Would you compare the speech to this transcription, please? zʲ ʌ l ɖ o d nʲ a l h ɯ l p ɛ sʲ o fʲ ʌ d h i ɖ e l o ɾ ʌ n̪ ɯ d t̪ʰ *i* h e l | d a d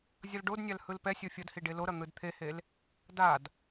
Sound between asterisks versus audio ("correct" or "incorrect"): incorrect